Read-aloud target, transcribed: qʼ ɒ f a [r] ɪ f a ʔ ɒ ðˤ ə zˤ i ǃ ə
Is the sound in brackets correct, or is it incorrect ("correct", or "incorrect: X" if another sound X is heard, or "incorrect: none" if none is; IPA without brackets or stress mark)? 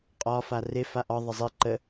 correct